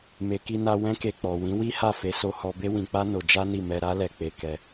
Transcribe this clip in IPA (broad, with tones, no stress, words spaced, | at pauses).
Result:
me˨ki˧na˧ wɛ̃˦ke˧k͡pɔ˨ wĩ˨˦wi˦ha˦˨fe˨˦ so˧hɔ˧be˦ wĩ˧k͡pa˦no˧ d͡ʒa˦ni˦˨ mɛ˧ɾa˦lɛ˧ k͡pe˧kɛ˧